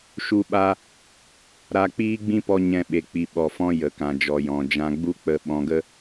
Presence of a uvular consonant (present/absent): absent